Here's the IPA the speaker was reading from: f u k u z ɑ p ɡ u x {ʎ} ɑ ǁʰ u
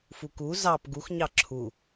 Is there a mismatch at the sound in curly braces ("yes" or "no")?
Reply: yes